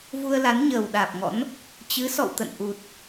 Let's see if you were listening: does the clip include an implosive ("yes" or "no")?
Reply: yes